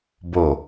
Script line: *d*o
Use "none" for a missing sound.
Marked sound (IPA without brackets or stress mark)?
b